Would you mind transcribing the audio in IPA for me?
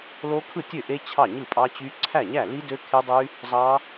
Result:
l o˦˥ kʰ ɯ˥˩ tʲ ø˥˩ ʔ e˦˥ t͡ɕʰ ɑ˥˩ ɲ ɯ˥˩ pʼ ɑ˦˥ t͡ɕ y˦˥ ǀʰ æ˥˩ ɲ æ˥˩ l i˦˥ d ø˦˥ kʰ e˦˥ dˤ y˦˥ | zˤ ɑ˦˥

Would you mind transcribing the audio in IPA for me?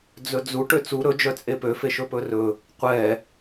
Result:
d͡z ɵ d͡z u ʈ ø t͡s u ɾ ɵ d͡ʒ œ t͡sʼ e p ø f e ʃ ɵ p ɵ r ɵ | qʷ ɛ

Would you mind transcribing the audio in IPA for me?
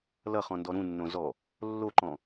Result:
l ʌ χ ɔ̃ n d ɔ ɾ ũ nː õ z ɔ | lː o ǃ ɔ̃

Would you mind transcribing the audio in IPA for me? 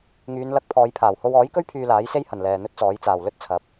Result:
ŋ yː˨˧ n l ɐ˧ k̚ pʰ ɔː˨˧ j pʰ aː˨˩ w h o˧ w ɔː˨˥ j k ɵ˥ ɥ pʰ yː˧ l aː˨˥ j s e˥ j h ɐ˨˩ n l ɛː˨ n̪ ɵ˥ t̚ t͡s ɔː˨˥ j t͡s aː˨˩ w l ɵ˥ t̚ t͡sʰ ɐ˨˥ p̚

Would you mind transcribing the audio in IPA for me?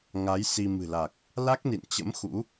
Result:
ŋ a˨˦ j s i˧ m ɨ̤˨˩ l a˨˩ k̚ | l a˦˥ k̚ n ḭ˧˨ n t͡ɕ ə̰˧˥ m x ṵ˧˥

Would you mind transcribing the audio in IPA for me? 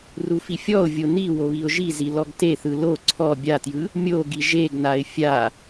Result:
r u f i fʲ ɔ ʊ̯ vʲ o n i w o β i ʊ̯ ʒ i z i l ɔ ɡ t e θ ɯ l o ǀʰ ɔ bʲ a t j ɯ | mʲ o ɡ i ʒ e ɡ n a ɪ̯ fʲ a

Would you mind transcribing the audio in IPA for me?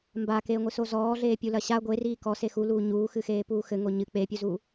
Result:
m b a k eː ŋʷ ɨ s o z ɔː ɮ eː pʲ u l ɐ ɕ a ɡʷ e r iː k ɔ s e x u l uː ɲ uː x ɨ x eː p uː x ɘ ŋ o ɲ ɨ k͡p e pʲ u z uː

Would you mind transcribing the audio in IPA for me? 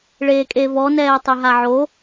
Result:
ɭ eː kʼ e v ɔ n ɛː tˤ e ɦ a ʕ o

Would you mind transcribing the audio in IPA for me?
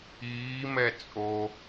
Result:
iː m ɛ t͡sʼ o

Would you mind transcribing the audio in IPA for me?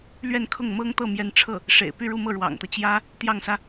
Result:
l ɥ ɛ˥˧ n kʰ ʊ˥˩ ŋ m ɤ˥ ŋ t̪ ɤ˥˩ m j ɛ˧˥ n ʈ͡ʂʰ ɤ˥˩ | ʂ ḛ˨˩ ɪ̯ p y˥˧ ɻ u˥˧ m ɤ˥˩ ɻ w ɑ̰˨˩ ŋ t̪ ɤ˦ t͡ɕ j ä˥ | t̪ j ɑ˥˩ ŋ s ä˥

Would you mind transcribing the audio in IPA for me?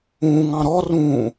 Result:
ũ ŋ ɑ̃ ɾ ɔ r ũː

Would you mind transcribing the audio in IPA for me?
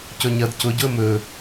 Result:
c ɵ ɲ ɐ d c ʊ ɟ ʊ ə̯ m ɵ

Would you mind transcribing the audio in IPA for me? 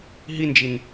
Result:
ɦ i n d͡ʒ i n

